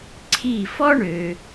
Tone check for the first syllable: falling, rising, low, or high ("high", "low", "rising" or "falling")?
falling